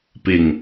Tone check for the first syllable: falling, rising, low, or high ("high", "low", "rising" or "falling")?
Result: low